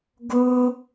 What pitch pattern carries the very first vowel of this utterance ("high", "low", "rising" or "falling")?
high